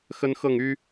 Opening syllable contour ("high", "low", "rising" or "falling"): high